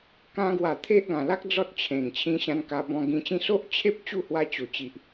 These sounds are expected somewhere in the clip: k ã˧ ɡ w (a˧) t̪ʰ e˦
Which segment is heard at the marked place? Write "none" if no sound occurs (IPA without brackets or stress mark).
a˨˩